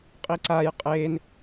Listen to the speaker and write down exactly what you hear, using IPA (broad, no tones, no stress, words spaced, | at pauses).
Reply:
qʼiǀaj qʼen